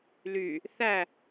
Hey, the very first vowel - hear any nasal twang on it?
no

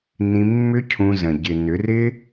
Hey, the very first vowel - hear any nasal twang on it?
yes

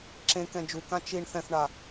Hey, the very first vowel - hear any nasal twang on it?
yes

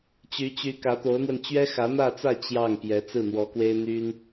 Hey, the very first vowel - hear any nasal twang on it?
no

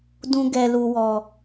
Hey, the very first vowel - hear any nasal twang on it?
yes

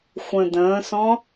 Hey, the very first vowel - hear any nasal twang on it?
yes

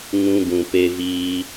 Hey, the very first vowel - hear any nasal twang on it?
yes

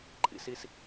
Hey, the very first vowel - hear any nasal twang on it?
no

